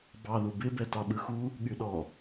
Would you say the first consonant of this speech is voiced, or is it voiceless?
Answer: voiced